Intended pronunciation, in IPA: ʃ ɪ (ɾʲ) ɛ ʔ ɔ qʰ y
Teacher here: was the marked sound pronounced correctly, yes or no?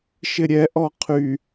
yes